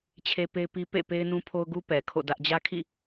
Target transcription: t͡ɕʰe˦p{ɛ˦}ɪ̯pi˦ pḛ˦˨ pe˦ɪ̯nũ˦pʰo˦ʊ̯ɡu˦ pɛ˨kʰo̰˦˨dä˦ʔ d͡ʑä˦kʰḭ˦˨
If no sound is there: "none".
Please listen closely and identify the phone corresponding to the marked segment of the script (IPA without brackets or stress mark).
e˦